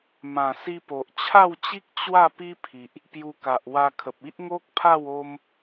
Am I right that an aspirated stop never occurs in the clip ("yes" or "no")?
no